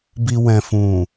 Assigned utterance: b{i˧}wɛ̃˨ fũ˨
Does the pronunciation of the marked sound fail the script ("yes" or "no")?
no